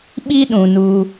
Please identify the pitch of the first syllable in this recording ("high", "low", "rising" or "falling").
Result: high